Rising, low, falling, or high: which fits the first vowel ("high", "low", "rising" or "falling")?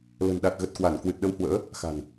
low